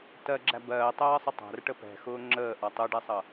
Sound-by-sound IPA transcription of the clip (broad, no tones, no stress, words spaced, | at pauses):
tɜɡ͡ǁæ bɜːtˤɜːsˤʊ tˤæ̤rʈə pɛ̤xʊː ŋ͡ǁəːʔɒ tˤuɖɛsˤʌ